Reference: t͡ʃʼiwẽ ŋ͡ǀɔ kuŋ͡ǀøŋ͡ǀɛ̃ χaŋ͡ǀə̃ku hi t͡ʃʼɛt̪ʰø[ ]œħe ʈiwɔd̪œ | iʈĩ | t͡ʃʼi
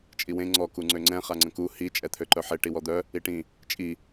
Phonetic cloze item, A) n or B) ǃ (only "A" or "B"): B